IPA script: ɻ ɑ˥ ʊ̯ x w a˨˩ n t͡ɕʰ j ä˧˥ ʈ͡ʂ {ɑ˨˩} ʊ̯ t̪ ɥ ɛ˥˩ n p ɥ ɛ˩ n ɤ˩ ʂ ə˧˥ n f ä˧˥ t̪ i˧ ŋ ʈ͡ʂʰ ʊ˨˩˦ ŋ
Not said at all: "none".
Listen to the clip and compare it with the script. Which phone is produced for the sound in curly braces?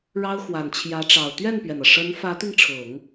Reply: ɑ˨˩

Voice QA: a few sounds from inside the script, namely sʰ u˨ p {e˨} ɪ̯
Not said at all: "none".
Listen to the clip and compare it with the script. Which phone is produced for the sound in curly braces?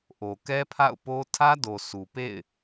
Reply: ḛ˦˨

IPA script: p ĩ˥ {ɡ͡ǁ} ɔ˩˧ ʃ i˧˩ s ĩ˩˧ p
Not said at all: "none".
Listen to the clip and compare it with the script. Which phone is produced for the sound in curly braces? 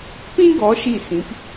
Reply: ɡ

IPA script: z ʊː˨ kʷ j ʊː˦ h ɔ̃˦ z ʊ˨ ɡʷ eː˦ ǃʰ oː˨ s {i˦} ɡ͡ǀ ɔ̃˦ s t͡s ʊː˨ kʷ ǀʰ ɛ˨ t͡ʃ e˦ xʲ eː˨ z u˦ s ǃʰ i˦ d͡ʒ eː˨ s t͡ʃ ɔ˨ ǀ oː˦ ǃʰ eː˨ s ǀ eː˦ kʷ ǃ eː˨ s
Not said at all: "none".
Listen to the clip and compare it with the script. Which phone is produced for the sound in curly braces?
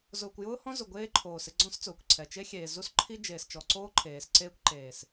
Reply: ɪ˦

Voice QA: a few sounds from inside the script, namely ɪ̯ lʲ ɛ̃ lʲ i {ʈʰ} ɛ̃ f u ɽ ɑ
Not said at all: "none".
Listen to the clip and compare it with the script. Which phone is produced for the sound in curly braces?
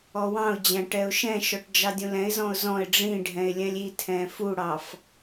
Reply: tʰ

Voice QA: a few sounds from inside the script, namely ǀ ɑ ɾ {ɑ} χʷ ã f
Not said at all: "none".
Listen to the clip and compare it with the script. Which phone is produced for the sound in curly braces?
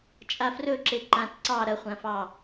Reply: ɐ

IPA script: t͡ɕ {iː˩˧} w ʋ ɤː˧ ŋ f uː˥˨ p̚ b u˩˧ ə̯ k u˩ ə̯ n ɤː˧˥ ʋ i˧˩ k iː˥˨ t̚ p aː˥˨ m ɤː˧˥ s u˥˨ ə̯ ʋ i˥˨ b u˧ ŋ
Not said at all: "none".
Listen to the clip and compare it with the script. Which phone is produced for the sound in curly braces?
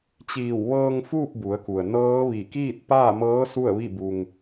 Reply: iː˧˩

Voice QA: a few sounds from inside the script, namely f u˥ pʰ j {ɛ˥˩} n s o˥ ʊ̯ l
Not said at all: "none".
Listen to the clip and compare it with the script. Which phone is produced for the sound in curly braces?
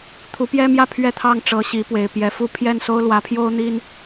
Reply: ɛ˥˩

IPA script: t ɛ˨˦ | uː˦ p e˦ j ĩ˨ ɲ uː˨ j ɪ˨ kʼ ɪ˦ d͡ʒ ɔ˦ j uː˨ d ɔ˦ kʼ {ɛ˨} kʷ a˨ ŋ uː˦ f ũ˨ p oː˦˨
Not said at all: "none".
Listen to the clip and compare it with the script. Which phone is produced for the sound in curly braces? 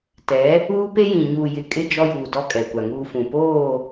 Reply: ɛ˨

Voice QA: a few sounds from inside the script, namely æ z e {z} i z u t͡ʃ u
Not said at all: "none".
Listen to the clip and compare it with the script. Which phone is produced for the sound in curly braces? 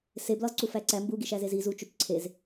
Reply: z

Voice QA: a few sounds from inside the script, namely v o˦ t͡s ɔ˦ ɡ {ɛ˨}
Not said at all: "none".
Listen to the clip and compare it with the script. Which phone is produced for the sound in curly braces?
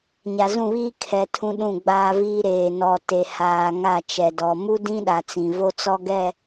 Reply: ɛ˦˨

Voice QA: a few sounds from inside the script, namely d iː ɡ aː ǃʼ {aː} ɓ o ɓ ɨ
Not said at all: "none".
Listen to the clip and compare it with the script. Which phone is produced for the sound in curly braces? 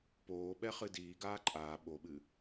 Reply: aː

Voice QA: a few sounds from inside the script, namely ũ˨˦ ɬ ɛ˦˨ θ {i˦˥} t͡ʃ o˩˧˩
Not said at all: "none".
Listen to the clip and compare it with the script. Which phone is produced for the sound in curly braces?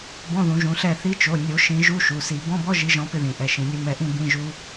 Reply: i˨˦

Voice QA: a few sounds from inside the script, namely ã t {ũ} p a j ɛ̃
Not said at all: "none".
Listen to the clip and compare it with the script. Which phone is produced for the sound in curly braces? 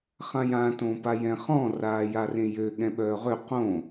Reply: õ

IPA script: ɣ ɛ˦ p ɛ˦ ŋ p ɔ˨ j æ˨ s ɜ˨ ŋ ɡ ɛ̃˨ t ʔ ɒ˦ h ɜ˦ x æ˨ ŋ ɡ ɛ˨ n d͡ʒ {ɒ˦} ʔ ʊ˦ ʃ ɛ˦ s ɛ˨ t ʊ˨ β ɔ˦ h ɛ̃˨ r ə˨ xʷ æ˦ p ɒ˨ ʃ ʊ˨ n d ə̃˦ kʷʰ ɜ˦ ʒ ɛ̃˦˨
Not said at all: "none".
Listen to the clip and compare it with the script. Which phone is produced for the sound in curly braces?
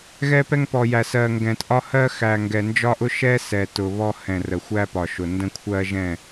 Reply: ɒ˦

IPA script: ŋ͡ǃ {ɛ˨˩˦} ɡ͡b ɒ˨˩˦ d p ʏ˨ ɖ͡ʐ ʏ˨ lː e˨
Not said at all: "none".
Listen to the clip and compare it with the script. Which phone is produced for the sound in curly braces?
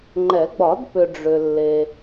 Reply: ɛ˨˩˦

